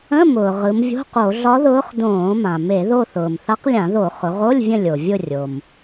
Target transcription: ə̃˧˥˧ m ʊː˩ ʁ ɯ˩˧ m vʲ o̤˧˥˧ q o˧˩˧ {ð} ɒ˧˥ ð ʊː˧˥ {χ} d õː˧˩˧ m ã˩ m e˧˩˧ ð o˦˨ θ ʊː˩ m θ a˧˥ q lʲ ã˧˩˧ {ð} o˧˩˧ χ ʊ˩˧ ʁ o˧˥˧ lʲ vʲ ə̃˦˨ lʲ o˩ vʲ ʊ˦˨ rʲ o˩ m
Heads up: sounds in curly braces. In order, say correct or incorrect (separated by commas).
incorrect, correct, correct